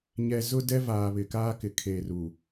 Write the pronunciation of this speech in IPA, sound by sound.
ɲ ɛ˨ z ʊ˦ d ɛ˦ v aː˨ β ɪ˨ k aː˦ k ɪ˨ kʰ eː˨ r u˨

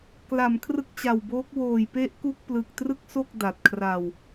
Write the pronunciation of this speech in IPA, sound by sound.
k l a˩˦ m kʰ r ɯ˦˥ k̚ t͡ɕ a˨˩ w b oː˦˥ k̚ w oː˨˩ j p e˦˥ ʔ k u˥˩ k̚ p l ɯ˨˩ k̚ t r ɯ˦˥ k̚ s o˥˩ k̚ d a˨˩ t̚ kʰ r a˧ w

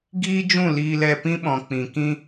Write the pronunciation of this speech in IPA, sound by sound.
ɡ iː˦ d͡ʒ ũ˦˨ l iː˧ l ɛ˧ p ĩ˦ ɓ ɔ̃˨ k͡p ĩ˨ k ĩ˦

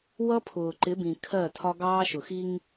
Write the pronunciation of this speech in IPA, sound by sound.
w ʌ˦ pʰ ʊː˨ ǃ ɪ˨˦ b ĩ˨ kʰ ɜ˦˨ tʰ ɒ˦ ɡ ɑː˦ ʃ ʊ˨ x i˦ ŋ

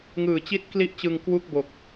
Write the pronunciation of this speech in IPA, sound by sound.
ŋ ɯː˨˩ t͡ɕ i˥˩ t̚ k l i˥˩ ʔ t͡ɕ ɯ˧ ŋ k w u˥˩ k̚ b o˨˩ k̚

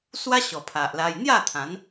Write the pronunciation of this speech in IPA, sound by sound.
s w a˦ ɕ ɔ˨˩ pʰ a˨ ʔ l a˧ j n̪ j a˥˧ t̪ʰ ã˨˦ n

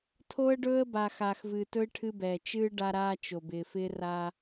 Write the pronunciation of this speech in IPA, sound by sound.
tʰ o˦ ə̯ ɖ ɵː˦ ə̯ b a˨ x aː˨ x v ɨː˨ t ɵ˦ ɪ̯ ʈʰ ɨ˦ b ɛː˨ t͡ʃ ɨː˦ ɖ a˦ ɾ aː˦ t͡ʃ o˨ b ɪː˨ f ɪː˦ r a˦

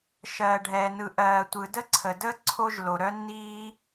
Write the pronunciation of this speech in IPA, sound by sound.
ʃ ɜː˩ ɖʱ ɛː˩ n ɯ˩ ʔ ɜː˩ tʷ ɯ˩ d ə˥ ǀʰ ə˩ d əː˥ ǀʰ o˥ ʒ l o˩ ɾ œ˥ nː iː˥

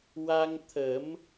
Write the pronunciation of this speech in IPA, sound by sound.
w a˧ ŋ t̪ʰ ə˨˩˦ m

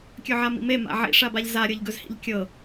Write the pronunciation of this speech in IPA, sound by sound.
kʲ ɵ ʕ a m ḭ m e m a̰ ʕ ḭ ʂ a b a ʎ z a ɾʲ ɤ ʎ ɡ ɵ z h ḭ ʎ kʲ ɤ

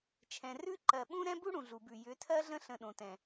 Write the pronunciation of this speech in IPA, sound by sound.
t͡ʃʰ ɛ̃˨ r ʉ˦ ǃ ɜ˨ ɓ ũ˦ ɾ ɛ̃˦ b u˦ ɽ ũ˨ ɮ u˨ b ʉ˨ j ʏ˨˦ tʰ ɜ˦ ɮ ə̃˦ ɬ ə̃˨ ɗ õ˨ t ɛ̃˨

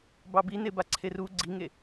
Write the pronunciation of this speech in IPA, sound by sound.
b ɑ b i n e b a ǀʰ e r u ɡ͡ǀ i ŋ e

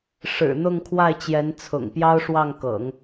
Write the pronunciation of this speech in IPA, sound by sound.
ʂ ɻ̩˨˩ n̪ ʊ˥˧ ŋ kʰ w a˥˩ ɪ̯ t͡ɕ j ɛ˧˥ n t͡sʰ ʊ̰˨˩ ŋ p j ɑ˥ ʊ̯ ʂ w ɑ˥˩ ŋ k ɤ̰˨˩˦ ŋ

